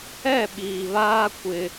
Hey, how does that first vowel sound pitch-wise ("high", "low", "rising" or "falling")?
falling